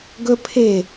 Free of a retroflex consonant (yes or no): yes